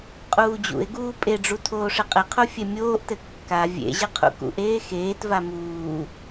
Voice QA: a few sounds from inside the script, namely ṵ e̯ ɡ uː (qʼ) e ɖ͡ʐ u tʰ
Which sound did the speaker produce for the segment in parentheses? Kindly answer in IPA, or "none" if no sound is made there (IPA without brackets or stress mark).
pʼ